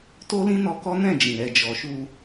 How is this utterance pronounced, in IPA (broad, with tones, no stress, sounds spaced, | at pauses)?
t o˦ l ĩ˦ n ɔ˧ k ɔ˦ n ɛ̃˦˨ d͡ʒ ĩ˨ ɾ ɛ˨ d͡ʒ ɔ˨ ʃ u˧